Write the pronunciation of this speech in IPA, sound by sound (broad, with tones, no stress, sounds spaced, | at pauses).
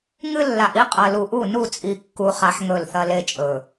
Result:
ŋ ɨ˦ lː a˨ ʔ i˦ qʼ ɐ˨ l u˨ ʔ u˦˨ n u˦˨ t͡sʼ i˨ kː u˨ χ a˨ ħ ŋ ɵ˦˨ l θ ɐ˦ l e˦ t͡ʃʼ ɵ˨